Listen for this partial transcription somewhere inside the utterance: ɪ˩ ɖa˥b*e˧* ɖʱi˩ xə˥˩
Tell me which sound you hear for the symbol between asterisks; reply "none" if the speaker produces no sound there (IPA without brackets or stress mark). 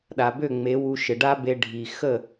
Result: e˧